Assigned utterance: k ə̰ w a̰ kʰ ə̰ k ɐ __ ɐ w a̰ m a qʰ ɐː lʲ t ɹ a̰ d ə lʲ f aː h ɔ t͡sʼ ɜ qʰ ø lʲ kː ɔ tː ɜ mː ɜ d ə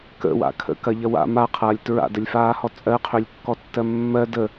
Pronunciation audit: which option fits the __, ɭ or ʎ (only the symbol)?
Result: ʎ